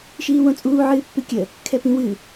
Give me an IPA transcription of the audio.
ʃiːwõt͡sʼuː ʕɨːpːɨkʲə | kʰɛpĩwɨ

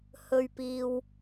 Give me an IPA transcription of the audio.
hɵ˨ɥpiː˨w

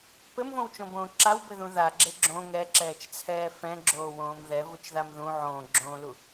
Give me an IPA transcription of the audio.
pɘmvõwt͡ʃõbõː ǁawbɘðũ ðaɡ͡ǁe ɡ͡ǁõ ŋɛǁɛːt͡ʃt͡sʰɛː fɛ̃ɡ͡ǁoːwõːm ðɛvut͡ʃðam ðũ ʕõːɡ͡ǁõːlu

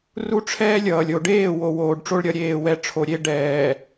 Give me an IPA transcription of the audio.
ru˦ʈ͡ʂʰɛː˦lʲʌː˨lʲ o˨ɖeː˦˨ wo˨woː˨ɖʈ͡ʂo˦ɭ ɾʲʌ˨ ɾʲeː˦˨wɛ˦ʈ͡ʂʰo˨ ɾʲe˦ ɖɛː˨

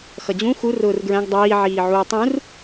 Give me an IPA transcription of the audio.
xʌd͡ʑũ xu rʊːrɡɹæ̃ɡ dˤiː ʕiːʕuːtˤũr

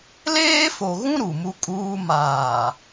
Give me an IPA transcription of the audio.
leː˦fo˨ɣũ˦ ɾu˨mu˦kʼuː˦ maː˨

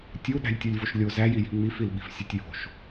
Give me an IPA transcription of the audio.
tʲu ɗæ̤lʲtʲolʲvoʃlʲo zæjiji̤ ŋ͡mifilɓi̤f sʲetʲjo̤ʃ

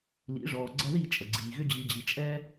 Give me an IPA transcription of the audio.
lḭ˨˦ʐɔː˨ɡ͡ǀɐ˦ ði˦˨t͡ʃʼə˨ɡ͡ǀiː˨ ɣʏ˦d͡ʑi˧d͡ʑi˧ t͡ʃʼɛ˦

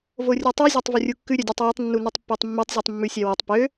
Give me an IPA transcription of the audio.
vorʲutˤy zʲɑtˤvɵrʲukːʉ ɾʲœdʲøtˤjɵtˤ nːunytˤpːotˤmːytˤ zʲʉtˤmːʉsʲæwotˤ pø

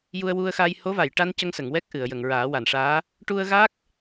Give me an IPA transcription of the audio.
ju˧ə̯wu˧ə̯xaː˧j ho˧˥va˨˩˨jʈa˧n cə˧ŋsə˨˩˨ŋwɛ˦˥k̚ʔɨ˨˩˨ə̯ jə˨˩˨ŋɹaː˨˩˦wa˨˩˨nʂaː˧˥ | ʈu˧ə̯ ɣa˦˥k̚

